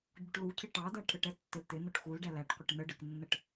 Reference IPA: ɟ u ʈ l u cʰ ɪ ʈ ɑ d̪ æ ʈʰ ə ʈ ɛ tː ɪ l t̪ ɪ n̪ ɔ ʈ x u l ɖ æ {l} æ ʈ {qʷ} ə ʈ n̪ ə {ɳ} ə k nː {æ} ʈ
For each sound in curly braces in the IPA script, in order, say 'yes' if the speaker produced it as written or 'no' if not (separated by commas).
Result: yes, yes, no, no